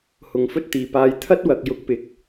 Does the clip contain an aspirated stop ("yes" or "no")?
yes